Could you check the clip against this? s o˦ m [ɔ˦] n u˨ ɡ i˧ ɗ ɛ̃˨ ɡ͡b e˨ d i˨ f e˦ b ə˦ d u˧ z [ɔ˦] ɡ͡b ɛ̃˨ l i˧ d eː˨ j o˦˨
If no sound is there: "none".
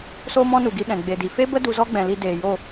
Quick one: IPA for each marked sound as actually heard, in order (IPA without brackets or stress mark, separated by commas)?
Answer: ɔ̃˦, ɔ˦